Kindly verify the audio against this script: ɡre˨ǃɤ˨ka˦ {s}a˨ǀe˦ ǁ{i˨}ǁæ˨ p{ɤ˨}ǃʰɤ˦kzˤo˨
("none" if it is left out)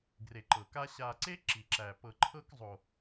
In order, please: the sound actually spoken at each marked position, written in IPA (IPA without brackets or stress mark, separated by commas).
ɕ, i˨, ɤ˨